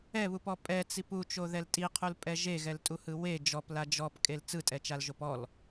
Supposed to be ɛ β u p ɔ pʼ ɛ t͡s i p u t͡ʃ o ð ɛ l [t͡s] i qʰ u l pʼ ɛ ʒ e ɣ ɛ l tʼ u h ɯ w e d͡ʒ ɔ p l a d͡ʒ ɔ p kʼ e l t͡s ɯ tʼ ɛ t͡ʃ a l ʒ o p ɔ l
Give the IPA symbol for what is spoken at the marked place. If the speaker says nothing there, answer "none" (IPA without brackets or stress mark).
tʼ